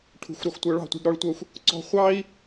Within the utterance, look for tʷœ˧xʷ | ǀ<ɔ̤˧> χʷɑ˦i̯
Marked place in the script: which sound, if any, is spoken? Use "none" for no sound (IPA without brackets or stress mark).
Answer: ɔ̤˧